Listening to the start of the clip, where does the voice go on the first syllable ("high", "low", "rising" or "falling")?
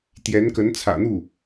rising